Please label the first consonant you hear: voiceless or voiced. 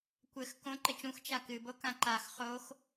voiceless